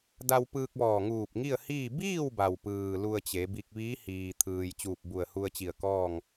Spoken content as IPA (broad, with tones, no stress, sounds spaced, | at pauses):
d a˧ w p ɯː˧ k̚ ʋ ɔː˧˩ ŋ uː˧˩ p̚ ŋ i˥˨ ə̯ h iː˥˨ b iː˥˨ w b a˩ w p ɯː˩ l u˧ ə̯ t͡ɕ e˩˧ b i˧ k̚ ʋ iː˧˥ h iː˩ t̪ʰ ɯː˩ j t͡ɕ uː˧˩ p̚ b u˧˩ ə̯ h u˧ ə̯ t͡ɕ i˧˩ ə̯ k ɔː˥˨ ŋ